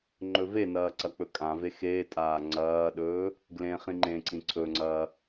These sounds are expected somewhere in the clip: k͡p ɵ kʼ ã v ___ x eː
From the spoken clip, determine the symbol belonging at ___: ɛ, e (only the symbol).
e